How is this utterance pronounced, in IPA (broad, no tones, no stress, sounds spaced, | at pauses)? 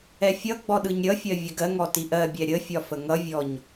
ɛ fʲ ʌ ɡ͡b ɔ ɗ ɯ ɲ ɾʲ ʌ fʲ ɜ vʲ ə ɡ ɜ ŋ ɔ t i ʔ ɜ bʲ ɛ ɾʲ ə fʲ ɒ f ə ŋ ʌ vʲ ɔ ɲ